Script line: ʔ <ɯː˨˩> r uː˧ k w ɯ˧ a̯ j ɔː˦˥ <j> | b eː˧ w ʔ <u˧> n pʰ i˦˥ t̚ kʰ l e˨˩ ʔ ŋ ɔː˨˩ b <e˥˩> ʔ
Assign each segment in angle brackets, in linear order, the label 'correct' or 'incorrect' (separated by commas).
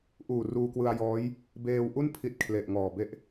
incorrect, correct, incorrect, correct